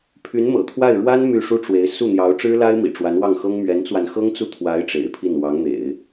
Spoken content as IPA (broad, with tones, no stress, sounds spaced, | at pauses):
pʰ y˧˥ n m ɤ̰˨˩ t̪ʰ w a˥˩ ɪ̯ ɻ w a˥ n m y˥˩ ʂ u˥ ʈ͡ʂ w e˧˥ ɪ̯ s u˥˩ n̪ j ɑ˧˥ ʊ̯ ʈ͡ʂ ɻ̩˥ l a˥ ɪ̯ m ḭ˨˩ ʈ͡ʂ w a˧˥ n w ɑ˥˩ ŋ x ɤ˥ ŋ m ɥ ɛ˧˥ n t͡s w a˧ n x ɤ˥ ŋ t͡s u˥˩ t̪ʰ w a˧˥ ɪ̯ ʈ͡ʂ ḛ˨˩ ɪ̯ pʰ i˥˩ n w ɑ˧˥ ŋ n̪ ḛ˨˩˦ ɪ̯